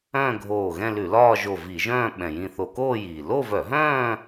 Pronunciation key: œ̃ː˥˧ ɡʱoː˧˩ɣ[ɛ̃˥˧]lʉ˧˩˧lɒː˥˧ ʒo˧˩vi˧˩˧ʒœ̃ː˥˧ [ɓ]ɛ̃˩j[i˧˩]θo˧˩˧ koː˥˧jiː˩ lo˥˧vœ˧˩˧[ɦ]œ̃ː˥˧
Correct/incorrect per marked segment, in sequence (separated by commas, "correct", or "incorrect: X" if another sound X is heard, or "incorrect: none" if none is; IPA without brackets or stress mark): correct, correct, incorrect: ĩ˧˩, correct